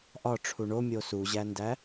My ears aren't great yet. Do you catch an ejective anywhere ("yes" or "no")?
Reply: no